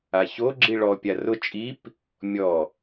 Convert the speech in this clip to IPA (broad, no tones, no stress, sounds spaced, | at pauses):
a ç o ɡ͡ǁ i ɭ ɔ pʲ a r ʊ t͡ʃʼ i p | mʲ ɔ